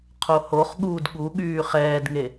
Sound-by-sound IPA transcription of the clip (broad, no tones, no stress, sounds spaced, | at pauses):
qʰ o h o χ ɠ uː d ɠ u ɠ yː χ ɛː d ŋ e